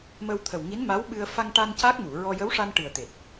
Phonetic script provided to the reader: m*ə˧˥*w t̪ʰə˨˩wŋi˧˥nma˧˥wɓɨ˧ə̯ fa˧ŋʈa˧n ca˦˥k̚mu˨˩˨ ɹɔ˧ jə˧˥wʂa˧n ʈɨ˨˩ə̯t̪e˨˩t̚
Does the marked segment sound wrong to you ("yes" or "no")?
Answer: yes